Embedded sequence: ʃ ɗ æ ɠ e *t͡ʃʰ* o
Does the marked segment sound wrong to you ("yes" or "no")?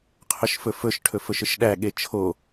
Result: no